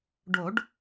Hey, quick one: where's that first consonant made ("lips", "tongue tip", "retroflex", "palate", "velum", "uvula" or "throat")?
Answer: retroflex